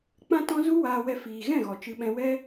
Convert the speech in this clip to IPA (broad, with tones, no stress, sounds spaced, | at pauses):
k͡p ã˦ t ɔ̃˦ z u˦ w aː˧ w ɛ˧ f iː˨ ɣ ɛ̃˦˨ ɣ ɔ˨ t͡ʃ ɨ˧ ɓ ɛ̃˧ w ɛ˦